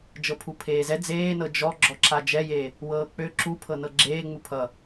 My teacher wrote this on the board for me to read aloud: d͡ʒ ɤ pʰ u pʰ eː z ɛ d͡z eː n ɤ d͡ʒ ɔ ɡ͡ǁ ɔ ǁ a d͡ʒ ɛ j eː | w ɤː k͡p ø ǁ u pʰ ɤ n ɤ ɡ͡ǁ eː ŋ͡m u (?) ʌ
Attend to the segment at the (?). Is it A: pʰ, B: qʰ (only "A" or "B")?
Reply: A